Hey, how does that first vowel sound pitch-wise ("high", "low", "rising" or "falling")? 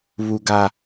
low